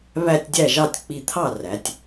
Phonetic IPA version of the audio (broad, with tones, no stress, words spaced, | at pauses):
βæ˥˧tʲdʲæ˥˩ʒɑ˥˩tʲ k͡pi˧˩t̪ʰɑ˥˩ræ˩˧tʲ